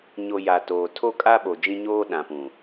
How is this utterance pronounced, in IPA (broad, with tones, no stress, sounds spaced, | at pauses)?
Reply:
ɲ o˨ j a˨ t oː˨ tʰ o˦ kʼ a˦ ɓ o˨ d͡ʒ ĩ˦ ɲ oː˦ ɗ ã˨ p ũ˨